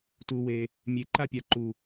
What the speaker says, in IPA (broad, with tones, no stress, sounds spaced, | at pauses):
t u˨ w e˨ | mʲ e˨ ǃ a˦ pʲ a˨ ǃ u˨